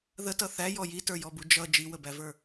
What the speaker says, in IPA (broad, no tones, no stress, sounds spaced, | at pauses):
ð ə t ʌ θ æ j ɔ j i t ə˞ j ɔ b u d͡ʒ ʌ d͡ʒ i w ə b æ v ə˞